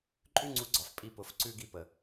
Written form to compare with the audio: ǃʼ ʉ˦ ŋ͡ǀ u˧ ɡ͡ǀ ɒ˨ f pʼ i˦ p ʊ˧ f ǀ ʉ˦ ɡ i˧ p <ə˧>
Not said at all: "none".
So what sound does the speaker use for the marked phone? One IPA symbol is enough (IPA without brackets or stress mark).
ə˨